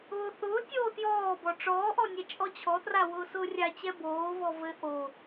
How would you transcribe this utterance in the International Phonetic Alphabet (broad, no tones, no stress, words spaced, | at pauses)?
ʊːθʊːtʲoː tjɔːbɔ ʈ͡ʂɔːʔɔ nʲɛt͡ʃʼɔt͡ɕʰɔtra wʊːsʊːrʲat͡ɕɛ boːvɔ vɘ ʔo